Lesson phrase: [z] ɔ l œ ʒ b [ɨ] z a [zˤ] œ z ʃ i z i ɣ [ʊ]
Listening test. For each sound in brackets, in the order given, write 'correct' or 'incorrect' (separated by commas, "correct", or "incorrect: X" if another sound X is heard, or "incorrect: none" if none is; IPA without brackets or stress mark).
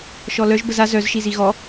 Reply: incorrect: ʃ, incorrect: ə, incorrect: z, incorrect: ɔ